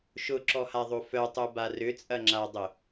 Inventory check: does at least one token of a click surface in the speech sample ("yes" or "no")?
yes